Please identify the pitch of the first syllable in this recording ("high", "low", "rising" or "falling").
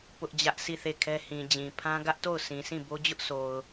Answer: high